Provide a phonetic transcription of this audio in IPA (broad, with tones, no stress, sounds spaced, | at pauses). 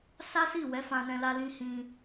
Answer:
s a˦ s i˦˨ w ɛ˨˦ f ã˧ n ɛ̃˧ l a˧ l ĩ˧ h ĩ˧